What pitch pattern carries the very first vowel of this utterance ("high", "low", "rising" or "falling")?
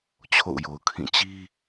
falling